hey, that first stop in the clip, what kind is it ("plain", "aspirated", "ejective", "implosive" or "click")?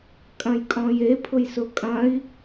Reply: ejective